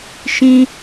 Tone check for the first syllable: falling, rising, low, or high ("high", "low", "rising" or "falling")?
high